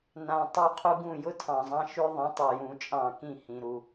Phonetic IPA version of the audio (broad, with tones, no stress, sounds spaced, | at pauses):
n ã˨ tˤ ʊ˥˩ qʰ u˧˥˧ ɡ ũ˥˩ j ʊ˥ tʰ ɑ̃˨ zˤ ɑ̃˥ ʃ ʉ˥ ðˤ ĩ˨˥ tˤ u˨ j ũ˨˥ t͡ʃʼ ɑ̃˥˩ k ĩ˥˩ h ĩ˨ ɾ u˨